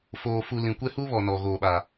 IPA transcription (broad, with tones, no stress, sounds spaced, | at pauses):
f oː˨ f u˨ l ĩ˨ kʷ ɛ˦ h u˦ β ɔ˨ n ɔ˨ ɣ oː˨ ɓ a˨